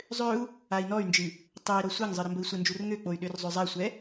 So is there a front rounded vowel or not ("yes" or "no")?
yes